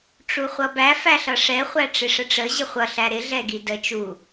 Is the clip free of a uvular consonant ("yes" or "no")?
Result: no